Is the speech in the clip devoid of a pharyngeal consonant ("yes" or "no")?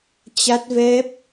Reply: yes